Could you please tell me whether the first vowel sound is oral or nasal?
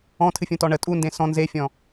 nasal